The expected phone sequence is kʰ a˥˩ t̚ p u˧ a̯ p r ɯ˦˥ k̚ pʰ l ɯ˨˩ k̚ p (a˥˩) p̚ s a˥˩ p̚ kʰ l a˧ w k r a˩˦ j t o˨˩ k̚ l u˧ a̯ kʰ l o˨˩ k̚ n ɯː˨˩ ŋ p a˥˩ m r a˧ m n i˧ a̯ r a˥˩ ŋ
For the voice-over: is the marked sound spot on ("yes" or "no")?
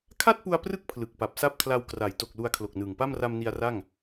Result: no